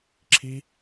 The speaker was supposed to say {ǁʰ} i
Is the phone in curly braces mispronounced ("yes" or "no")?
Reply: no